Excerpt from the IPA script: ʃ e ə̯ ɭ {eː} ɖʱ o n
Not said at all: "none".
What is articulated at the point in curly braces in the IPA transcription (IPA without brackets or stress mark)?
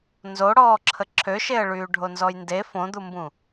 yː